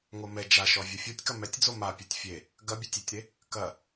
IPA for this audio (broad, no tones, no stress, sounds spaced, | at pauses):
ŋ o m ɛ d͡ʒ a ʃ ɔ vʲ o fʲ o tʲ k ɐ m ɛ tʲ d͡z o m a pʲ o tʲ fʲ e | ɡ ɐ bʲ ɐ tʲ e tʲ ɾ e | k ɐ